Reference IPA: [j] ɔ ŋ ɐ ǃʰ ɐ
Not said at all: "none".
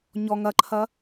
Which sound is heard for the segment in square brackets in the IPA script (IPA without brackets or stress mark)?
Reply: ɲ